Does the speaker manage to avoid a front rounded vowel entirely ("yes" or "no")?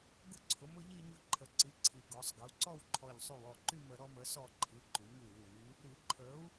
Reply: no